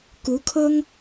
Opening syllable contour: rising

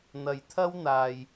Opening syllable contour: low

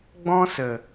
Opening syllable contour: high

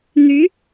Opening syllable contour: rising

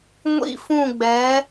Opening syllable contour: falling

